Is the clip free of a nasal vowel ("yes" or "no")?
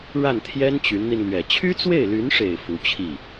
yes